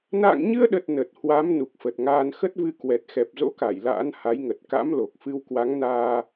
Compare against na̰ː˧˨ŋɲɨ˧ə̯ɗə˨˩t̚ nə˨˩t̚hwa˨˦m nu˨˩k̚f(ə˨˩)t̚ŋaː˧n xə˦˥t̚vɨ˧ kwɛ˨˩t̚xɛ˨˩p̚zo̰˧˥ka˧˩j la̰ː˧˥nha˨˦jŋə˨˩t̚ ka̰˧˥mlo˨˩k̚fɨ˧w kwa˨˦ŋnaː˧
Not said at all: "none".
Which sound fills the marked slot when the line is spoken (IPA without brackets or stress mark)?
ə˨˩